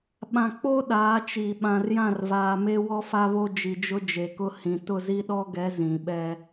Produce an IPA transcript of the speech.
ɓ ã˨ k͡p o˦ ɗ aː˨˦ t͡ʃ i˨ ɓ ã˨ r j ã˦˨ r v aː˨ m e˦ w ɔ˦ f a˦ β o˦ d͡ʒ i˨ d͡ʒ ʊ˦ d͡ʒ e˨ k ʊ˦ h ĩ˨ t ʊ˦˨ z i˦ ɗ ɔ˦ ɡ ɛ˨˦ z ĩ˨ ɓ ɛ˦

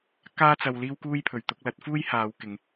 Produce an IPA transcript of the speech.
k aː˥ t͡s ɐ˧ w l iː˥ w k uː˥ j pʰ ɵ˨˧ ɥ t̪ ʊ˨˥ k̚ l ɐ˨˥ t̚ f uː˥ j h aː˨˧ w k ɪ˨˧ ŋ

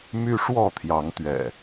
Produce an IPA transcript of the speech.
m y˦ ʂ w ɔ˥˨ t̪ʰ j ɑ˨˦ ŋ t̪ ɥ ɛ̰˨˩

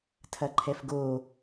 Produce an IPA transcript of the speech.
tʰ ɐ ǃʰ ɛ f ɡ o

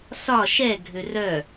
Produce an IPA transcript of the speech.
s ɒ ʃ ɛ ɡʱ ø r œ

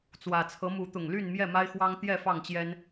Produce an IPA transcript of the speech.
t͡s w ä˨˩ t͡sʰ ɤ˨˦ m u˨˦ t̪ ʊ˨˩ ŋ l y˥˨ n m j ɛ˥˨ m a˦ ɪ̯ x w ɑ˦ ŋ t̪ j ɛ˥˨ f ɑ˥˨ ŋ t͡ɕ j ɛ˦ n

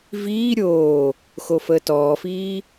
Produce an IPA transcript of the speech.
v iː ɾʲ oː | x o f əː t ɔː f iː

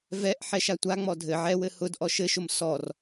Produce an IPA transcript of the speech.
v ɛ ʔ ħ ɛ ʃ a tʷ a ŋ͡m ɔ dʱ ɘ ʕ ɛ w ɘ h ʊ d ʔ ɔ ʃ ɘ ʃ ʊ m s ɔ r

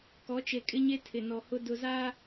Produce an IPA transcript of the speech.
k ɔ˨˦ t͡ʃ e˨ kʼ ɪ˦ ɲ e˦ tʰ ɪ˨ n ɔ˨ h ʊ˦ d ʊ˨ z a˦

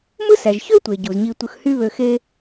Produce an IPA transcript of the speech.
m ɯ˥ s æ˩ ʒ ç ø˥ tʷ e˩ ɟ u˩ z ɲ i˧ tʷ ɯ˧ x h y˥ β ø˧ x e˥

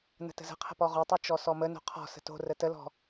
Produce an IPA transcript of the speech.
n ə̤ t ə̤ z ə̤ qʰ ə̤ p ɔ ʁ o tˤ o t͡ʃ ɔ s ɔ m ə n o̤ qʰ ɔ̤ s ə̤ t o̤ r ə t ə l ɔ̤

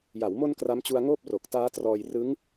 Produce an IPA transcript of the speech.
j a˩˦ w m o˧ n k r a˦˥ m t͡ɕ u˧ a̯ ŋ oː˥˩ p̚ r o˨˩ k̚ t aː˦˥ t r ɔː˧ j r ɯ˦˥ ŋ

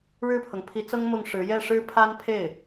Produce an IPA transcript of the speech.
ɻ ɻ̩˥˩ pʰ ɤ˩ ŋ pʰ i˧˥ t͡s ɤ˥ ŋ m ʊ˥˩ ŋ ʂ ɻ̩˧˥ j ɛ˥˩ ʂ ɻ̩˥ pʰ a˥ n pʰ e˥˩ ɪ̯

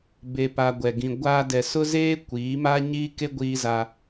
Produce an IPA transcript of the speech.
b e˨ p a˨ ɡʷ ɛ˨ ɡ ĩ˨ ɡʷ a˨ d ɛ˨ s ʊ˦ z eː˦ kʷ iː˨˦ m a˦ ɲ iː˦ k e˦ ɡʷ iː˦ z a˦

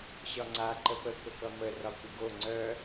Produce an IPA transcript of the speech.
ɕ ɒ ŋ͡ǀ a ǃ ə p ə k ə k ʌ m ə r ɒ kʷ ɪ ɡ o ŋ͡ǀ œ

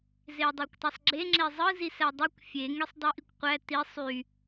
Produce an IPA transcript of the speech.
z e ɐ̯ dˤ ɑ kʷ tˤ ɑ sˤ ɡ͡ǁ e ŋ͡ǁ e zˤ ɯ z i s æ dˤ e kʷ fʲ e ŋ e sˤ dˤ i ʔ i kʷ qʷ æ t i sˤ y

